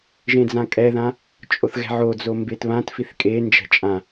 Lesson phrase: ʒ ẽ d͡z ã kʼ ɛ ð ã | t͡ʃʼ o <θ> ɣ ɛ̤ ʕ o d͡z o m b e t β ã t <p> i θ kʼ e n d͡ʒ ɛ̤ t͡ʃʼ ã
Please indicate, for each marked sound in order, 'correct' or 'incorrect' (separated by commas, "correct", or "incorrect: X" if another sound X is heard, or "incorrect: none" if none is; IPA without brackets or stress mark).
correct, incorrect: f